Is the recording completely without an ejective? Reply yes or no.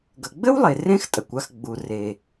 no